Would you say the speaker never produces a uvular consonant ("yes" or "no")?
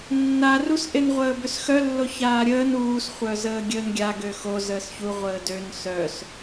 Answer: no